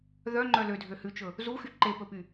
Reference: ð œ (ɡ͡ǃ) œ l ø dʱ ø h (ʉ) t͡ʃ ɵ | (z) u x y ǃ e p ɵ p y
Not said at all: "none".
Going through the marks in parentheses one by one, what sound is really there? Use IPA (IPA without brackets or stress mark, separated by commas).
ŋ͡ǃ, ʉ, z